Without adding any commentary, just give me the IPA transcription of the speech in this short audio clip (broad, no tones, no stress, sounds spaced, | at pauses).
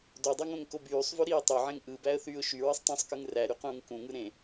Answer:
d o dˤ o ŋ õ ŋ k o b yː sˤ v ø ɾ iː tˤ ø ʕ ẽ ŋ ʔ ɯ b æ ə̯ θ yː ʊ̯ ʃ y ɹ ɯ sˤ tˤ ũ sˤ k ɯ ŋ r æ ɾ y q ũː ŋ k ũ ŋ ɯ ɾ ẽ